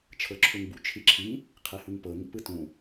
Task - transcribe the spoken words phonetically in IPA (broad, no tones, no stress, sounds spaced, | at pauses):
t͡ʃʰ ɤ ǁʰ u ŋ ɡ͡b ṵ t͡ʃʰ i ǁʰ i | qʰ ɛ h ũ ŋ p ɤ ŋ ḭ p ɯ t ũ